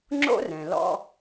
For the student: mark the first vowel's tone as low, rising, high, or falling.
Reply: high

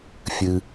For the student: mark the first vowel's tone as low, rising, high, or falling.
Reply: low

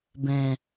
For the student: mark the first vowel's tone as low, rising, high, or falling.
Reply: low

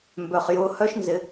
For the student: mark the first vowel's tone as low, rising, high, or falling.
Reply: low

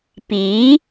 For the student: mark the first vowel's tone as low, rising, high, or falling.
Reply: rising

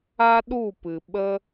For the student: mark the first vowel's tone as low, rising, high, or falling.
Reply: high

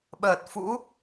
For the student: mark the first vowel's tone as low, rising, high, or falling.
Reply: low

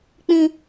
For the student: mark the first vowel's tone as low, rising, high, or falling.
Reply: high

